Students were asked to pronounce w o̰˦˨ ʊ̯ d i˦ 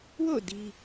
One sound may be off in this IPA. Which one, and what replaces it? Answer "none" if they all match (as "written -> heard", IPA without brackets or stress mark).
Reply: none